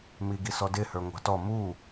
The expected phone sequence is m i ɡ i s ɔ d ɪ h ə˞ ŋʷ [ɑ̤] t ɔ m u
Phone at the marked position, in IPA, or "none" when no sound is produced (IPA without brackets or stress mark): ɑ̤